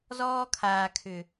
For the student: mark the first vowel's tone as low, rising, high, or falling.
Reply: high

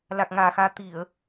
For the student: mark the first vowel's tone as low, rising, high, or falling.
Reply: low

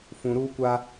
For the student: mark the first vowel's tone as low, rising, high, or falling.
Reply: low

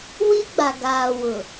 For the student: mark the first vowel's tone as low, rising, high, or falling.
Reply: high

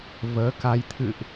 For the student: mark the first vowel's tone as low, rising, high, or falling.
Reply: rising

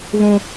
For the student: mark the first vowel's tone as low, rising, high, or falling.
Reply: high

